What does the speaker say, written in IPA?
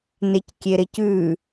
n e c kʲ e ɾ e c ʉ

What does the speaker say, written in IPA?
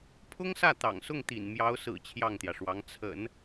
pʰ ʊ˥ ŋ s ä˥˩ t̪ ɑ̰˨˩ ŋ s ʊ˥˩ ŋ t̪ ḭ˨˩ n m j ɑ˧˥ ʊ̯ s ɹ̩˨˩ t͡ɕʰ j ɑ˥˩ ŋ t̪ j ä˩ ʂ w ɑ˧˥ ŋ t͡sʰ ə̰˨˩˦ n

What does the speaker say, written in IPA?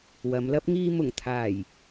w ɐ˨˧ m l ɐ˥ p̚ ŋ iː˧ m ʊ˨˩ ŋ t̪ʰ aː˨˩ j

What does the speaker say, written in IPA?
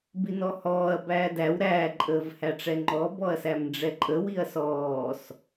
b i n ɔ h ɔː ɐ̯ b æː d æ w ɾ æː ǃʼ əː v h æ ʈ͡ʂ ɛ ŋ͡ǃ ɔ b ɔ ɐ̯ s æ m ɖ͡ʐ ɛ ǃʼ ə w i ɐ̯ s ɔː s

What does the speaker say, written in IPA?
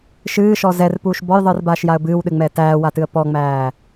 ʃ ɨː ʃ ɔ z ɛ r p uː ʃ b ɔ j ðˤ ɨː r b aː ʃ j a ə̯ b ɨː w ɗ ɨ ŋ͡m ɛː t æː w a t ɨ ə̯ p ɔ ŋ͡m æː

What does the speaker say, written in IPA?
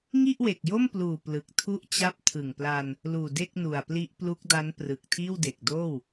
ŋ i˥˩ ʔ w e˨˩ k̚ j o˥˩ m p l uː˨˩ p l ɯ˨˩ k̚ tʰ u˥˩ ʔ t͡ɕ a˥˩ p̚ tʰ ɯ˨˩ ŋ p l a˧ n | l uː˨˩ d e˥˩ k̚ n u˨˩ a̯ p l i˦˥ ʔ p l u˦˥ k̚ d a˦˥ n p r ɯ˨˩ k̚ tʰ iː˥˩ w d e˨˩ k̚ d oː˥˩ w

